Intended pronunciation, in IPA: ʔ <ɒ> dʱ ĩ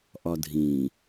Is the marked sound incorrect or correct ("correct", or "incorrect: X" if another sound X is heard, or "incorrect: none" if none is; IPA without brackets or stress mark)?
correct